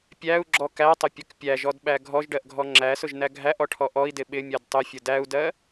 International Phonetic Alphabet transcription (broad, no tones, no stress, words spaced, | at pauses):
pʲæu̯ɡ͡ǁɔ kætˤʊpʲʌk pʲæʒɔdɓæ ɡʱɔʒɖɜʔɡʱɔ ŋ͡ǁæsʊʒnæ ɡʱæʔɔʈʰɔ ʔɔi̯dɪ ɓɪmʲɜd tˤʊfʲʊ dæu̯dɜ